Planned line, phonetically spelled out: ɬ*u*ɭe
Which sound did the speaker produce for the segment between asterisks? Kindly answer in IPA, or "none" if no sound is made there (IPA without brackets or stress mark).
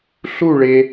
u